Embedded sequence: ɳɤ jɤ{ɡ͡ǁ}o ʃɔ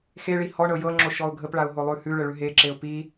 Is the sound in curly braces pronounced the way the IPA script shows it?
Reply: no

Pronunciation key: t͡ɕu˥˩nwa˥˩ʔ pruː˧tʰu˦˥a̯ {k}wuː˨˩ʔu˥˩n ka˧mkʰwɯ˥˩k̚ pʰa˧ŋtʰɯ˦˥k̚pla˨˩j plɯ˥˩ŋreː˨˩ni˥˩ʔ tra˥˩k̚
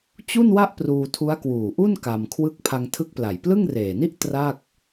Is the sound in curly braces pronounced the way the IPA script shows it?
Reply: yes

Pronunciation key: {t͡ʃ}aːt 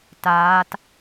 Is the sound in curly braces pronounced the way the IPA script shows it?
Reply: no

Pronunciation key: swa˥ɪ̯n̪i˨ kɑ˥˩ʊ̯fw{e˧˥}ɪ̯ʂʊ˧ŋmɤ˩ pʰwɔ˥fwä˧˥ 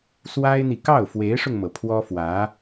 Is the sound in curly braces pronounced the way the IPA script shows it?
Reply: yes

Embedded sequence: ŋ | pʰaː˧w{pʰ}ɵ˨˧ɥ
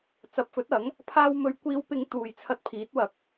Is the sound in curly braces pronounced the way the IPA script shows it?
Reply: no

